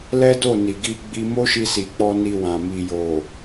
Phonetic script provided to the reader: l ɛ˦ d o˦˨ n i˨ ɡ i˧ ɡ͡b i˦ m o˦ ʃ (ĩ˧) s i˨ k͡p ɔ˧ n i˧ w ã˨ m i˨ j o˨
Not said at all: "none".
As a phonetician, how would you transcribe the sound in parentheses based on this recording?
i˧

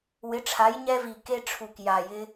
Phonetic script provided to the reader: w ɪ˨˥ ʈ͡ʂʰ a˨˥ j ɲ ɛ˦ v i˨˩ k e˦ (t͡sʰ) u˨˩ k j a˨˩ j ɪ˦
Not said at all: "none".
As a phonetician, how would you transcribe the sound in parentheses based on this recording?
ʈ͡ʂʰ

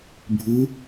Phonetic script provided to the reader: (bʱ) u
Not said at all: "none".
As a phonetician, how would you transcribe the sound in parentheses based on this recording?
bʱ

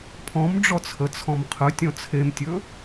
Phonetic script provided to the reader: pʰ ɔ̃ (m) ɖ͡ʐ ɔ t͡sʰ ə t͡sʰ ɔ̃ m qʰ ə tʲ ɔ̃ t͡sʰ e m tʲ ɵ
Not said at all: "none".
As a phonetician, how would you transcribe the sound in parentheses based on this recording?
m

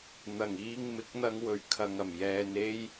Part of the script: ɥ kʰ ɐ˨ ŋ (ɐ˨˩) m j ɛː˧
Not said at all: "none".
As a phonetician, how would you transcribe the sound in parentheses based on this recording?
ɐ˨˩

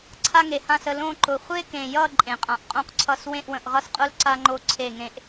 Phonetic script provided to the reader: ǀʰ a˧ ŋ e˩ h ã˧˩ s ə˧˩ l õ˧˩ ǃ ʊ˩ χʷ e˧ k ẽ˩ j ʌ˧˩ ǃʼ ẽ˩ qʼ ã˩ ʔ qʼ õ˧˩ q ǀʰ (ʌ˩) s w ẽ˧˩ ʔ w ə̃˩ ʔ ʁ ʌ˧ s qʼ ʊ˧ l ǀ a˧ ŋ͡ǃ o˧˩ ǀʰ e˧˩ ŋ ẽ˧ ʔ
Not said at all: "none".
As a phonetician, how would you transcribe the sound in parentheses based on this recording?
ʌ˧˩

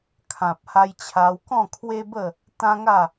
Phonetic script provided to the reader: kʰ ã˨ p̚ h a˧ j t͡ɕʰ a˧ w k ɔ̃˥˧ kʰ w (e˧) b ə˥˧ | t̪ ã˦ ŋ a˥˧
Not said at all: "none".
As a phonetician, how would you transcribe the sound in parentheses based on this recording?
e˦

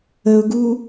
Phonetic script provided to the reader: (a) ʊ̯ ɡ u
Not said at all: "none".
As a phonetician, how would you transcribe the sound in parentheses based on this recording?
ə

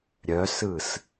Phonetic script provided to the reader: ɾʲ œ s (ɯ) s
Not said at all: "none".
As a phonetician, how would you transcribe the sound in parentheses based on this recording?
ɯ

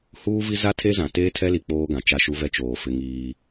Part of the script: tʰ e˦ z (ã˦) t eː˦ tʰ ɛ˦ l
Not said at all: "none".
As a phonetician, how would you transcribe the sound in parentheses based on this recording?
ã˨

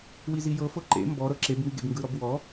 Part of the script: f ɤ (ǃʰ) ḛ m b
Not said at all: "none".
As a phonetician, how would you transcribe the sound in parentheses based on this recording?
ǃ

